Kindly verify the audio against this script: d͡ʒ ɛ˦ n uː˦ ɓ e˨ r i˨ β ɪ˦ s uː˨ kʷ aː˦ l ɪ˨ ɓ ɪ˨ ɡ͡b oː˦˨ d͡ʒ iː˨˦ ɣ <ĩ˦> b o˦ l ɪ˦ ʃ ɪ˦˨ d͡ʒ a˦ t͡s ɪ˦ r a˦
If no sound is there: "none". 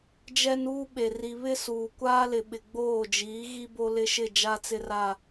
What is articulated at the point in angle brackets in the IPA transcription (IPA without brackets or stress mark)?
i˦